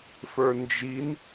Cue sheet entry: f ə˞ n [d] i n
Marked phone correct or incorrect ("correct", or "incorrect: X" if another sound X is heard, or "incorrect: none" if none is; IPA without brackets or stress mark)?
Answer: incorrect: d͡ʒ